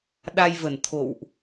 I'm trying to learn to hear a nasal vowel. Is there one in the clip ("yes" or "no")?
no